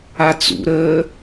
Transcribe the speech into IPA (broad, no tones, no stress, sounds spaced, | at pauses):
a t͡s ṵ ɾ əː